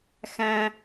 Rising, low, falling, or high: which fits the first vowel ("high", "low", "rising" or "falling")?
high